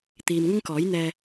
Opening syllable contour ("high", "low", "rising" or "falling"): low